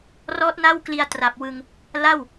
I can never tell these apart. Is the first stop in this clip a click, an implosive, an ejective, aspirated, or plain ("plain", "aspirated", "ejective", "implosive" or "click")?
plain